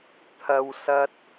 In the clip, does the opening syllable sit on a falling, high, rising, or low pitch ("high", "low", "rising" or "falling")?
high